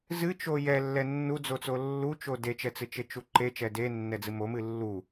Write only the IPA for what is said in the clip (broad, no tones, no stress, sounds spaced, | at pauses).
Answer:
z ɨ t͡ʃ o j ɛ lː ɛ nː u d͡z o t͡s o lː u t͡ʃ o d e t͡ʃ ɛ t͡s ɨ t͡ʃ e t͡ʃ u ǃ e t͡ʃ ɛ d e nː ɛ d͡z ɨ m o m ɨ lː u